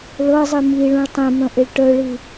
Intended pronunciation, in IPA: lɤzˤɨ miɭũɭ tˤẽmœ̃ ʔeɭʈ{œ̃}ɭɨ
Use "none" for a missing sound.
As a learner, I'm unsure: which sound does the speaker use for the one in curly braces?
œ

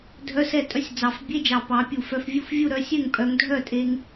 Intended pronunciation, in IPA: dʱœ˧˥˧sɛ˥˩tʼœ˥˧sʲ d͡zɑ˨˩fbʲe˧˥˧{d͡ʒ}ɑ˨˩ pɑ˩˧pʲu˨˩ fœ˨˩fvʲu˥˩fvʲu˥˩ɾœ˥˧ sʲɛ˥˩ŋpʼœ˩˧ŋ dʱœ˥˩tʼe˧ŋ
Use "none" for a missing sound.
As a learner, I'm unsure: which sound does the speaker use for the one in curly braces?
d͡ʒ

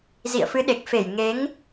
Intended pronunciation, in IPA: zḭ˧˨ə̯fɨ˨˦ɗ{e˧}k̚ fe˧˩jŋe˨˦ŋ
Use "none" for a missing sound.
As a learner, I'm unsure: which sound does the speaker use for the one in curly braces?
e˨˩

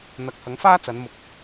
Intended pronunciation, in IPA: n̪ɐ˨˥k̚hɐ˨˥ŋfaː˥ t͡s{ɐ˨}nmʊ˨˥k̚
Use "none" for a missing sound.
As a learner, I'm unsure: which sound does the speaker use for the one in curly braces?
ɐ˨˧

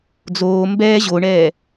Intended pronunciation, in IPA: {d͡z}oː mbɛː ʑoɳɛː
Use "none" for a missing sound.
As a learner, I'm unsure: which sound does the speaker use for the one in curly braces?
d͡z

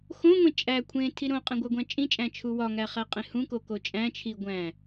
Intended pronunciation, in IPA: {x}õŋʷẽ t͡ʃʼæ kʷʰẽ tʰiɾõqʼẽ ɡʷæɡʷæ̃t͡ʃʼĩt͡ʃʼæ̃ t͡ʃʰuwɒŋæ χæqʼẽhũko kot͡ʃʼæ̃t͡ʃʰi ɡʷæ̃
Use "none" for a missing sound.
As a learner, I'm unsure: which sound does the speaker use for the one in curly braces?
x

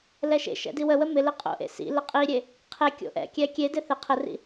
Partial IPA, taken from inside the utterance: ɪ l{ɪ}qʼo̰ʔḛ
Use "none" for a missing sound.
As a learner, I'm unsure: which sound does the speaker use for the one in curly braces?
ɪ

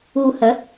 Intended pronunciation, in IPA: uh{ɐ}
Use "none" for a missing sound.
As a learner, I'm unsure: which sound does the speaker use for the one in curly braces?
ɐ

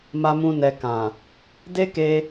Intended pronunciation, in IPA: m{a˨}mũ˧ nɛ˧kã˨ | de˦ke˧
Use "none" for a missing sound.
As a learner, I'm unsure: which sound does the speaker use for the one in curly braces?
a˧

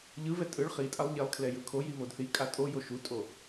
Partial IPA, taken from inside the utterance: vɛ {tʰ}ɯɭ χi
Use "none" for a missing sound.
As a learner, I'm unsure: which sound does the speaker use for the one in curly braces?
tʼ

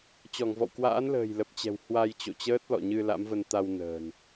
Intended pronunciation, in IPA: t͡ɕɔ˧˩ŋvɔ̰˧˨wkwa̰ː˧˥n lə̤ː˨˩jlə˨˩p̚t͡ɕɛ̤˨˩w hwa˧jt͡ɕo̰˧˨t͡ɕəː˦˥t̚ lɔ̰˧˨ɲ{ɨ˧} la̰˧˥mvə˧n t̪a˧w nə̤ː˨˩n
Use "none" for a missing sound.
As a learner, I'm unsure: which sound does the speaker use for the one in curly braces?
ɨ˧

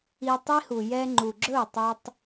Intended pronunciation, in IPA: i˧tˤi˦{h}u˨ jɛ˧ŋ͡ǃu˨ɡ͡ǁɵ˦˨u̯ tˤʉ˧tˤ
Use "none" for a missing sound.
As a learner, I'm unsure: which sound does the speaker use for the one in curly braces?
h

